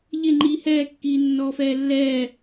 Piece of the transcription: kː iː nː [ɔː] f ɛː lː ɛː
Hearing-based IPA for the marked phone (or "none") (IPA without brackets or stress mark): ɔː